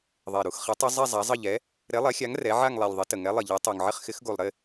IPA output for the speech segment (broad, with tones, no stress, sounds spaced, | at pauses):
ðˤ e˨˩ ɾ u˨˩ x χ e˨˥ tˤ ɪ˨˥ zˤ e˥˨ zˤ a˨˥ zˤ ə˥˨ ʎ ɛ˨˥ | ɾ e˨˥ lˠ ɛ˨˥ xʲ a˨˥ ŋ r ɛ˨˥ ʕ a˥˨ ŋ lˠ ɛ˨˩ lʲ ðˤ ɪ˨˥ t ə˨˩ ŋ ɛ˨˥ lˠ ɪ˨˩ ʎ ɛ˨˥ tˤ u˨˩ ŋ ʕ ɪ˥˨ χ x ɪ˨˥ x ɡ u˨˩ lˠ ɾ ɪ˥˨